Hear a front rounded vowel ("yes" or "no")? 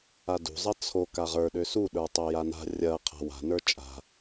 yes